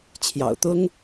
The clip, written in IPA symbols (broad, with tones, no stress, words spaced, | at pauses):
t͡ɕʰjɑ̰˨˩ʊ̯t̪ʊ˥ŋ